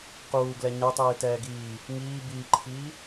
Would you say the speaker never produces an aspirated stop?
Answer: no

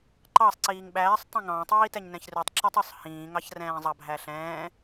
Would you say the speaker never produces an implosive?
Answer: no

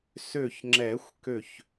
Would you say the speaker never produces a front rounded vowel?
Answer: no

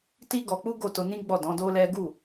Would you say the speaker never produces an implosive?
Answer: yes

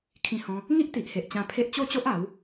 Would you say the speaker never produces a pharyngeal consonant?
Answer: yes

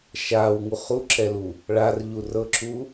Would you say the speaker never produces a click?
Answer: no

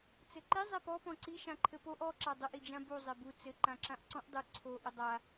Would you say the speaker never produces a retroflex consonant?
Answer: yes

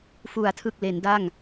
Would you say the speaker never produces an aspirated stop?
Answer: no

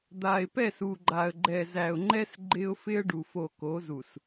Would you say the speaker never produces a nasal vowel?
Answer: yes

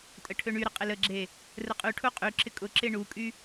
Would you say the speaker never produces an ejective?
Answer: no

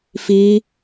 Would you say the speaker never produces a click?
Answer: yes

